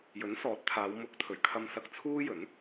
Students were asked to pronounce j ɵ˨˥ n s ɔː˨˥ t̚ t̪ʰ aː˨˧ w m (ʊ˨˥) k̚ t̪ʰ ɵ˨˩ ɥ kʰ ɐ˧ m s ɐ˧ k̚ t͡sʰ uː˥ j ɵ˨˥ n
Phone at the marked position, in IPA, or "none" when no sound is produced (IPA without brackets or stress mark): ʊ˨˥